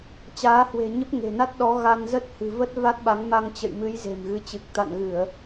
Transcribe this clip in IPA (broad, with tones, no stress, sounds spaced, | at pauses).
t͡ɕ aː˨˦ h w e̤˨˩ ɲ ə˦˥ p̚ ŋ e̤˨˩ n a˦˥ t̚ ɗ ɔ˨˦ ɣ a˧ n z ə˦˥ t̚ h ɨ̤˨˩ v ə˦˥ t̚ v a˦˥ t̚ ɓ a˨˦ ŋ m a˧ ŋ t͡ɕ ə̰˧˨ j m ɨ˨˦ j z e̤˨˩ m ɣ ɨ˨˦ t͡ɕ ɨ˨˩ k̚ t̪ a̰˧˨ n ɣ ɨ˧˩˨ ə̯